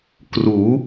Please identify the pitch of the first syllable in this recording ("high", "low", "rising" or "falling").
rising